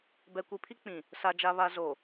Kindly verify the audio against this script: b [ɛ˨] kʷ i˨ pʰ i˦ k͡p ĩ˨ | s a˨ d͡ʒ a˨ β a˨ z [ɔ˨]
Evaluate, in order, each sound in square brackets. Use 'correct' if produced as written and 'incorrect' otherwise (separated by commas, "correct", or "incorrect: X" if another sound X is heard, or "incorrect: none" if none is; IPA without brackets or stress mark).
correct, incorrect: o˨